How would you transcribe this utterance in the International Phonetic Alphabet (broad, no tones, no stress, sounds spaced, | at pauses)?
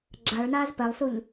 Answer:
ɡ͡ǁ a ɭ n aː z p ɜ lˠ s u ʎ